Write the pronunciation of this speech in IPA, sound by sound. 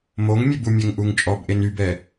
m o ŋ mʲ e b u mʲ ɛ ŋ ʔ u ŋ t͡ʃʼ ɔ b ʔ e n y b ɛ

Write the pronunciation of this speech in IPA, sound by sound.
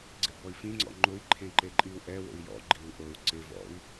ɡ͡ǀ ɪ b ɔ i̯ f ĩ ŋ͡ǀ ɔ̰ ŋ͡ǃ ʊ i̯ ǃʰ ẽ ǃ e ǃʼ i u̯ ʔ ɛ w o̰ i̯ j ɔ̰ ɡ͡ǃ i u̯ ʔ o u̯ ǀ ɪ v ɔ̰ i̯

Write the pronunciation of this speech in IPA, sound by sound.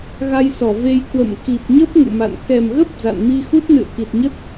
ɣ a˧ j s ɔ˧˩ v e˧ j k w ə̰˧˨ m k i˨˩ p̚ ɲ ə˦˥ p̚ ŋ ṵ˧˨ m a̰˧˨ n k ɛ˨˩ m ɣ ə˦˥ p̚ z a̰˧˨ n m i˧ x u˦˥ t̚ n ɨ̰˧˨ ə̯ k i˨˩ t̚ ɲ ə˦˥ t̚

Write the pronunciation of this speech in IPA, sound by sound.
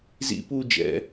z ḭ p uː d͡ʒ ɛ̰

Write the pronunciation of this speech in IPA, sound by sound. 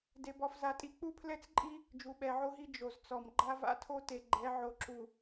d e˦ b ɔ˦ f z a˦ tʼ i˦ k͡p u˦ pʰ l ɛ˦ t͡s ǃʼ i˦ | d͡ʒ u˨ ɓ ɛ˨ ʕ o˦ ɦ i˦ d͡ʒ o˨ z t͡s ɔ˨ m ɡ͡ǃ a˦ v a̰˦ tʰ o˦ t e˨ ɡ͡ǃ ɛ˨˦ ʕ o˨ ǁ u˨

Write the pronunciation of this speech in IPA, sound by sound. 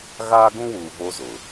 ɣ aː˦ ɡ ũ˦ w uː˨ v o˦ z ʊ˨

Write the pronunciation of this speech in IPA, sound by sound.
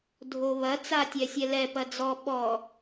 dʱ o β ɐ t͡s a tʲ ɛ sʲ ɛ l ɛ p ɐ d͡z ɔ ɓ ɔ

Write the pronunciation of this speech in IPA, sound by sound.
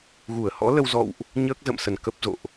ɣ u˧˩ ə̯ h ɔ̰˧˥ l ə˧ w z ɔ̰˧˨ w ʔ | ɲ əː˦˥ k̚ z ə̰˧˨ m s ə˧˩ n k ə˦˥ p̚ z o̰˧˨ ʔ

